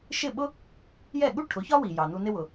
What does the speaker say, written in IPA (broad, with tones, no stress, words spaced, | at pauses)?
ʃɪ˥˩ɓʊ˥ | jɛ˥˩ɠu˥ ʈʰʊ˩˥çɒ˥wi˩ jɑ˩nu˧nɪ˥wʊ˩